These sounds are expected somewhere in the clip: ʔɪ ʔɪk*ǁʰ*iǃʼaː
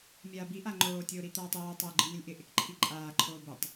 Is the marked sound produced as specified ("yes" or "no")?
no